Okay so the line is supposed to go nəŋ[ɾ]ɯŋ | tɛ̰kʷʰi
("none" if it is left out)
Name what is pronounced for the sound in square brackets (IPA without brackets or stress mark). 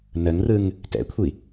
r